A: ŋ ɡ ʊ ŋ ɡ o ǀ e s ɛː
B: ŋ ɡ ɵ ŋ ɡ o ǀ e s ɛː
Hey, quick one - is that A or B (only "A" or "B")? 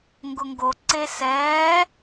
A